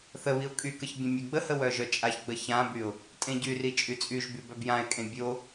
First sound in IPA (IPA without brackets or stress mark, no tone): θ